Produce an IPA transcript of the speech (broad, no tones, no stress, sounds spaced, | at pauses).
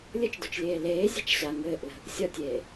lʲ ə t͡ʃ d o t͡ʃ lʲ eː l eː zʲ a̤ t͡ʃ ɕ a ŋ ɘː ʔ l ə̤ | sʲ ɒ tʲ eː